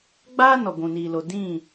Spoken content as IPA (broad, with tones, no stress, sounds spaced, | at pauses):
ɡ͡b aː˦ n ɔ˨ ɡʷ ũ˨ n iː˨ l o˨ d ĩ˦˨